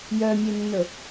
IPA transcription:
j œ mʲ e nː ɵ

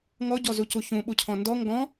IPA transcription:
ŋ ɔ ɟ ɔ z u c u ç ũ ɓ u cʰ ɔ̃ n d ɔ ŋ ɡ ɔ̃

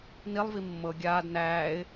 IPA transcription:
n i lˠ v i mː ɤ ɡʲ aː d n æː ɪ̯

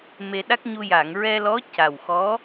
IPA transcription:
m e˧ ɗ a˦˥ k̚ ɲ u˧ j a˨˩˨ ŋ ɹ ɛ˧ l ɔ˧˥ c a˨˩ w x ɔ˧˥

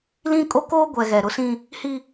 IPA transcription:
l ĩ˦ kʼ o˦ k oː˦ ɡʷ ɛ˨ ɣ ɛ˨ ɾ ʊ˦ s ĩ˦ | h i˦

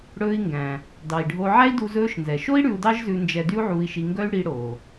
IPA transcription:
ɽ ɵː˧ i̯ ŋ ɡ æ̃˩ | d ɑ˩ i̯ ɖʱ o˧ ʕ æ˥ i̯ d u˧ z ɵː˧ ʃ n z ɛ˩ ʃ o˥ i̯ ɽ ʉ˧ u̯ d ɑ˥ ʒ z ʉ˧ n d͡ʒ ɛ˧ d y˥ u̯ ʕ uː˧ i̯ ʃ i˧ ŋ ɡ œ˥ y̯ ɽ i˧ ɽ o˩

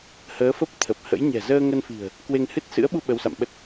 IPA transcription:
h əː˨˦ f ə˦˥ p̚ t̪ʰ ə˨˩ p̚ h ə̰˧˥ j ɲ ɛ̤˨˩ z əː˧ ŋ ə˧ n f i̤˨˩ ə̯ | k w e˧ ŋ h ɨ˦˥ t̚ s ɨ̰˧˥ ə̯ ɓ u˧ ɓ ə˨˦ w s a̰˧˨ m ɓ ə˦˥ t̚

